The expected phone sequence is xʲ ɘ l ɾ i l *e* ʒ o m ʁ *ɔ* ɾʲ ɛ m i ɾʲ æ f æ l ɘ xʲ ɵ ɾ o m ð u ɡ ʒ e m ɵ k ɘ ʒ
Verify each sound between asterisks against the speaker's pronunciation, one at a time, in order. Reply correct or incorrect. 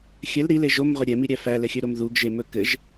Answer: correct, incorrect

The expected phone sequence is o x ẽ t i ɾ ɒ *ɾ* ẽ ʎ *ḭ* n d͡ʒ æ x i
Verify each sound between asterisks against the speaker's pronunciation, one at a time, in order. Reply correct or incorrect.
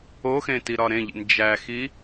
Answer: correct, correct

